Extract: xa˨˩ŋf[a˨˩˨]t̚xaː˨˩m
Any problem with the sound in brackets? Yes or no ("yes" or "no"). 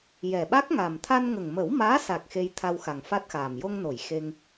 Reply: yes